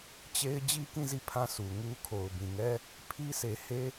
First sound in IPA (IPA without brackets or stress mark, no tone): t͡ɕ